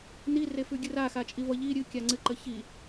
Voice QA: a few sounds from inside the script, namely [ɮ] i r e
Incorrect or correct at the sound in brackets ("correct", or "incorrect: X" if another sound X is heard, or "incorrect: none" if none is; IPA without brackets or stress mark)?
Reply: incorrect: n